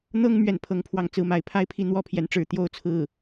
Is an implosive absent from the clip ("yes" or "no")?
yes